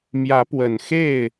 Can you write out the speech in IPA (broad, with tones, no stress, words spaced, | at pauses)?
mjä˨˦pwə˨˩n xe˥˨ɪ̯